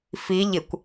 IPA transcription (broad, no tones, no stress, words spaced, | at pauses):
fi ʎɪkʷ